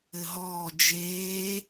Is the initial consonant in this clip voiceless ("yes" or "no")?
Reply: no